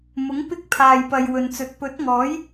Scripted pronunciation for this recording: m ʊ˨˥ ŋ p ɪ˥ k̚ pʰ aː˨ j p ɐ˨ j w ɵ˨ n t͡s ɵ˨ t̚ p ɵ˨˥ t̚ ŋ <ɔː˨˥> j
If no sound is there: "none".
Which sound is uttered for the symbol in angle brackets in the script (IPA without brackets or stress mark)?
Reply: ɔː˨˥